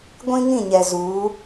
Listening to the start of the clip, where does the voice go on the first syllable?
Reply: high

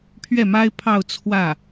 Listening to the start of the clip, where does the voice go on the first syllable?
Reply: falling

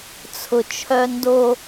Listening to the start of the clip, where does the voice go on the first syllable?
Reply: low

